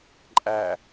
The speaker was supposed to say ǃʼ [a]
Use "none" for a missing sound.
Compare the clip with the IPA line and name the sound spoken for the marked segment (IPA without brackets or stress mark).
æ